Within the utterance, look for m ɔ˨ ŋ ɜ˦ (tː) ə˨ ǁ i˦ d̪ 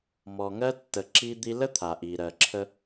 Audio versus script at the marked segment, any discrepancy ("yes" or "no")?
no